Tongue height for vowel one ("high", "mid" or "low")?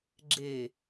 mid